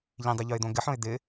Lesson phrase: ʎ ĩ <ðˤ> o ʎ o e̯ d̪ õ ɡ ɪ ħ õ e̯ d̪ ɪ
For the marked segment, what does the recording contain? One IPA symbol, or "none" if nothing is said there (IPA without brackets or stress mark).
dˤ